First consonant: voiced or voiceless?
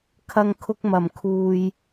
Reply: voiceless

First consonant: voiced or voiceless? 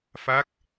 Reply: voiceless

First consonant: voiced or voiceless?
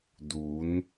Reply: voiced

